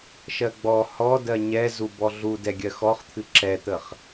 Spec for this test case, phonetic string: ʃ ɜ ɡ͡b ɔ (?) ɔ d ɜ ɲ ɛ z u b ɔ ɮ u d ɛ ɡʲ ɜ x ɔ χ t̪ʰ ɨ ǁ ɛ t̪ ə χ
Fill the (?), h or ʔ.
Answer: h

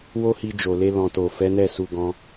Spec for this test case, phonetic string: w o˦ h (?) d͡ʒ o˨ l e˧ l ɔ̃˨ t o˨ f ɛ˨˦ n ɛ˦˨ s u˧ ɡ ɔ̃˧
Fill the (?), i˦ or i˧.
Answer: i˧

